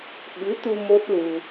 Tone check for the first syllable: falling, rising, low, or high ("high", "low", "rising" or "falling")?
rising